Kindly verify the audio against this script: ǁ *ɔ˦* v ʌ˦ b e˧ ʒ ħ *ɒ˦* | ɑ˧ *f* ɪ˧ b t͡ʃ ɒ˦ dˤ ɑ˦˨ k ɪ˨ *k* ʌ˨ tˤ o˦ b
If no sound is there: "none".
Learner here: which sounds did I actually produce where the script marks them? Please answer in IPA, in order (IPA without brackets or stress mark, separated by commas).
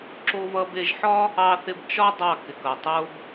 o˦, ɒ˦, θ, k